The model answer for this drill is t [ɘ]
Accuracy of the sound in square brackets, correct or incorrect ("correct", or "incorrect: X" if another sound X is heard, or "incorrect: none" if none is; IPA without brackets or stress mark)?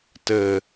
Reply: correct